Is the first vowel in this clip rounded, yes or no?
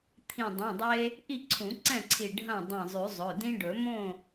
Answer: no